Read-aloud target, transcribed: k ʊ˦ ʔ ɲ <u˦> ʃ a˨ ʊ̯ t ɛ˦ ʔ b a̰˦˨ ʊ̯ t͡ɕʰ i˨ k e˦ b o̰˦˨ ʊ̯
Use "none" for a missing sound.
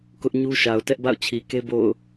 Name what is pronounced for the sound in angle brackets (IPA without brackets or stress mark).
u˦